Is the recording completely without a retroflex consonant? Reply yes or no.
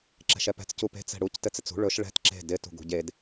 no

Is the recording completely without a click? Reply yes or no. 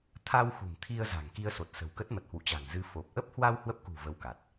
yes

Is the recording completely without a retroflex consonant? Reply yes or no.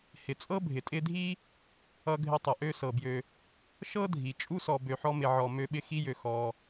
yes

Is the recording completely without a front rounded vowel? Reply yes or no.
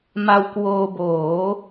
yes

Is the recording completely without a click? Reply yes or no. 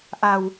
yes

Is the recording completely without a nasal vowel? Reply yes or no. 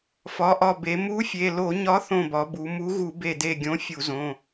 no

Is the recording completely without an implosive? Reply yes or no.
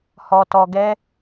yes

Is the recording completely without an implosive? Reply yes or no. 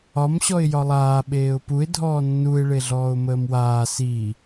no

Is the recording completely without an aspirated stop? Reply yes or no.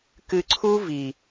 no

